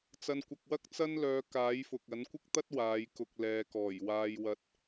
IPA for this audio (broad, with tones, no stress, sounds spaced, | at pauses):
t͡s ɐ˨ n kʷ ɐ˨ k̚ w ɐ˥ k̚ t͡s ɐ˥ n l œː˨˧ k aː˨˥ j f ʊ˨ k̚ ɐ˨˥ n kʷ ɪ˥ k̚ t̪ ɐ˥ t̚ w aː˨˧ j k ʊ˧ k̚ l ɛː˨ k ɔː˨˩ j w aː˧ j w ɐ˧ t̚